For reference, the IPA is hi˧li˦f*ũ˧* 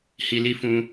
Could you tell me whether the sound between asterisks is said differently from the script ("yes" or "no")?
no